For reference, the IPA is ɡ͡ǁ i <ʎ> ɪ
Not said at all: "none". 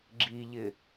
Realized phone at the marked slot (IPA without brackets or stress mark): ʎ